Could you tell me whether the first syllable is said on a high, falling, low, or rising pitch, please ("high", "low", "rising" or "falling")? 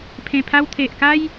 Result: low